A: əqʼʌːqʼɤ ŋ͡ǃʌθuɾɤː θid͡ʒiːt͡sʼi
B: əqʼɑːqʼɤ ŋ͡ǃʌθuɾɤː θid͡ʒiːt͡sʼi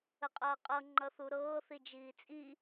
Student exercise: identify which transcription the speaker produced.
A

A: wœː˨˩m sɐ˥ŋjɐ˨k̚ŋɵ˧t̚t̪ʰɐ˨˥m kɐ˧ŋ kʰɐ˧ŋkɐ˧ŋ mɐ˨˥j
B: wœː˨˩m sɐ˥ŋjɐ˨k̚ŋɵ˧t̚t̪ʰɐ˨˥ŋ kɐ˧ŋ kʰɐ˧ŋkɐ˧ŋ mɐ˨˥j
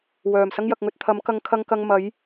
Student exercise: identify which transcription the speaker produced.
A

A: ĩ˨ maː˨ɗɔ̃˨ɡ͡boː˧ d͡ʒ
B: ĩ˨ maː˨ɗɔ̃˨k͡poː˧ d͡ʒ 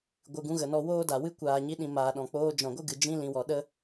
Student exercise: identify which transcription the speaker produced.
B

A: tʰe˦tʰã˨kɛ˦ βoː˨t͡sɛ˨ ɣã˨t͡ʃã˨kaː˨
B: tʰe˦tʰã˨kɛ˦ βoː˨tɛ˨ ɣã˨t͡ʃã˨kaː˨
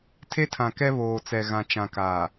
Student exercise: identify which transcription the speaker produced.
A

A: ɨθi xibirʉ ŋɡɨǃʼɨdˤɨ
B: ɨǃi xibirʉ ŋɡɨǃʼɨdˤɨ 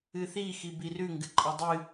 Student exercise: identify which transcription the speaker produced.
A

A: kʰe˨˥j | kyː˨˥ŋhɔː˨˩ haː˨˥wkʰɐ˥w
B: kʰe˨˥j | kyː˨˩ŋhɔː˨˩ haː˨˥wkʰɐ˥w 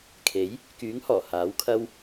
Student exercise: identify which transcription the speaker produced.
A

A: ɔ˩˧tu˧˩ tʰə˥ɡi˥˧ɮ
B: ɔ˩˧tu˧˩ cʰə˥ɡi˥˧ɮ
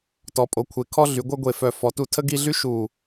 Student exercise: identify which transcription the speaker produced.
A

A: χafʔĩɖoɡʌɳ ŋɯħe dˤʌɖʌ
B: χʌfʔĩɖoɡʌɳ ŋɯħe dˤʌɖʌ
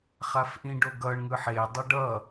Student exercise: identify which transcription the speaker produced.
A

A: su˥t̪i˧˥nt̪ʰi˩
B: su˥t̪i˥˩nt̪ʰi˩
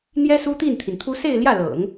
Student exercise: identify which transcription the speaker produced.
B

